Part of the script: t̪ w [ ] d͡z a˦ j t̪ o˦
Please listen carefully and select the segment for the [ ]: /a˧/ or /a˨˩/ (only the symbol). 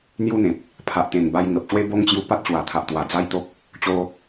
a˨˩